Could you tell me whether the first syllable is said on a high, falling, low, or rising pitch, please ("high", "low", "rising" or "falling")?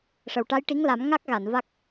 low